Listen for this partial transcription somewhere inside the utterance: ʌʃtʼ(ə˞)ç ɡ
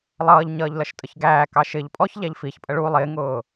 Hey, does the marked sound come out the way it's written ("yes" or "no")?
no